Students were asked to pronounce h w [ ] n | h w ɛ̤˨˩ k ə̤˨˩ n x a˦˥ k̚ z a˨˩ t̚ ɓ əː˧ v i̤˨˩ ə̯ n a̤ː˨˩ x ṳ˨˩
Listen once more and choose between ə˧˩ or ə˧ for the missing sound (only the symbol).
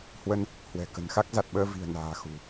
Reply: ə˧